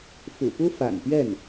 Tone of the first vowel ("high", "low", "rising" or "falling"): low